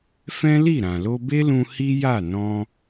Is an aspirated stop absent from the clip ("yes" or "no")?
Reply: yes